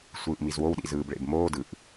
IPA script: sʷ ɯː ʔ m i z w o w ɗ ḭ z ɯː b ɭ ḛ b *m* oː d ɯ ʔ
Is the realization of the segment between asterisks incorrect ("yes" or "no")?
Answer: no